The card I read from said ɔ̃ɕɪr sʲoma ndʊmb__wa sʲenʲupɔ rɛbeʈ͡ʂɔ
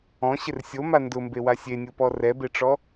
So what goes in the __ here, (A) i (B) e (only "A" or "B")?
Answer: B